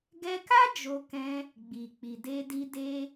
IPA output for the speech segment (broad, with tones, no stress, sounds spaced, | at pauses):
ɡ ɛ˧ k a˦ d͡ʒ o˧ k ɛ̃˧ | ɡ͡b i˨ k͡p i˨ d e˧ d i˧ d e˦